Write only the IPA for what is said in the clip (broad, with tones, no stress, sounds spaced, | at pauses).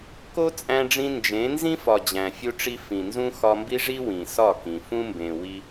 k o˦ t͡sʼ æ̃˧ ɖ͡ʐ ĩ˧ n d͡ʒ ẽ˨˦ n z ĩ˦ f ɒ˨ d͡ʑ æ̃˨ fʲ u˦ ʈ͡ʂ i˦ f ĩ˨ n z ũ˦ x ɒ˧ m b i˦ ʐ i˦ w ĩ˨ s ɒ˦˨ k ĩ˨ f ũ˦ m b ẽ˨ w i˧